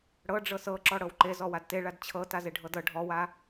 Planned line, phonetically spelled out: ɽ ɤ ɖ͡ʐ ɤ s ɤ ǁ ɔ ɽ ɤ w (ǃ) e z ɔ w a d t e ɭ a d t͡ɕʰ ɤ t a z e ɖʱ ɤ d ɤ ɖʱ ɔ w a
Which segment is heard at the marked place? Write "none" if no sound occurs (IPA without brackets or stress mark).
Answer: ǃ